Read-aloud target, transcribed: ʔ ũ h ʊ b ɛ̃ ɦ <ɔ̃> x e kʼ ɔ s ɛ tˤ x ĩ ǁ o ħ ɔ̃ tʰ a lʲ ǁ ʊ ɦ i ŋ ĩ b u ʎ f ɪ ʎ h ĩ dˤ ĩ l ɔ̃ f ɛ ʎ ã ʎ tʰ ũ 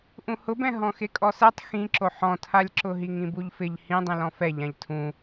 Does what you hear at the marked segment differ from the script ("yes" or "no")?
no